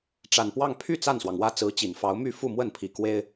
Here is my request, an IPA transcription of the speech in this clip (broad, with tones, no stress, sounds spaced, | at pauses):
ʈ͡ʂ a˨˩ n p w ɑ˥˧ ŋ pʰ y˥˧ t͡s a˥˩ n s w ɑ˩ ŋ w ä˥˩ t͡s ɹ̩˧˥ t͡ɕ i˨˩ n f ɑ˧˥ ʊ̯ m y˥˧ f u˥˧ m w ə˥˩ n pʰ i˨˩ k w e˥ ɪ̯